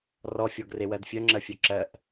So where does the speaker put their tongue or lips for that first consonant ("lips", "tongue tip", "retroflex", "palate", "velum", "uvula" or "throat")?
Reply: tongue tip